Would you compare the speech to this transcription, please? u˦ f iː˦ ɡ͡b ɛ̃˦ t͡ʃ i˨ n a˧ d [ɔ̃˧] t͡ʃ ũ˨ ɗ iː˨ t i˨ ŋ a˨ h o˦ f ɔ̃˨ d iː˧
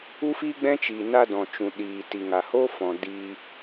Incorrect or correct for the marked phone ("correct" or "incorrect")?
incorrect